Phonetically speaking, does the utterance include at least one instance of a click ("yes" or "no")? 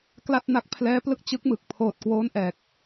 no